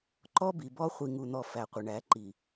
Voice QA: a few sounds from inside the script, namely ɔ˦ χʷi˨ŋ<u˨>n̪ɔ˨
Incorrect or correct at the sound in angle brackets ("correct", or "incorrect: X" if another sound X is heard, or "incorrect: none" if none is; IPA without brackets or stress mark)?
correct